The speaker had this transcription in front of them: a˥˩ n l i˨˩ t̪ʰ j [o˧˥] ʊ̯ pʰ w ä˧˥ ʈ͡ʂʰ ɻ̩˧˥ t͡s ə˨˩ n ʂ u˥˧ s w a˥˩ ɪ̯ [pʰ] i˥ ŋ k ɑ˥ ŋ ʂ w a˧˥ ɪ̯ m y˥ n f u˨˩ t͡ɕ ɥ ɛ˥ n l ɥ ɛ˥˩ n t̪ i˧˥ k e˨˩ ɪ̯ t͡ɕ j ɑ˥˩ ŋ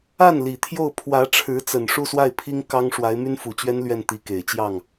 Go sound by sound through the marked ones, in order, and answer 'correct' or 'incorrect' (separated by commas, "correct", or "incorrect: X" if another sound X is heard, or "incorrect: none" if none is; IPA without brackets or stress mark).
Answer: incorrect: o˥˩, correct